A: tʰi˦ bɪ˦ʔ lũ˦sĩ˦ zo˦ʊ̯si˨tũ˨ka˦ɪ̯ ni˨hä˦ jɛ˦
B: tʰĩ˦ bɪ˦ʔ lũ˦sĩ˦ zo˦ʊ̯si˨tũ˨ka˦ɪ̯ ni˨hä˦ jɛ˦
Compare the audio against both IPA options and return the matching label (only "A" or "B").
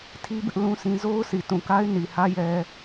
A